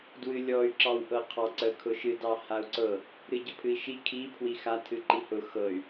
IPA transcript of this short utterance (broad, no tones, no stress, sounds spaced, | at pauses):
d w ɨ lʲ ɔ y̯ ǁ ɑ w ʔ ɤ qʰ ɑ ǀ ə kʰ ʊ ʃ ɨ d ɑ h a u̯ ǀ ɤ | ɾ ɨ ɟ ə pʰ ɨ i̯ ʃ i kʰ i pʰ w i x a tʰ ɨ ǃ i h ʊ x ɤ y̯